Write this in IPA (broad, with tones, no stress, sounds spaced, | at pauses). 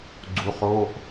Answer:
ɡ͡ǀ u˨˦ χ oː˧˥˧ ʔ